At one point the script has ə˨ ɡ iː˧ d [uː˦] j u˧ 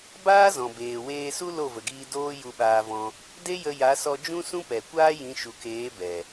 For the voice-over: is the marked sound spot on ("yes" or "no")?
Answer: no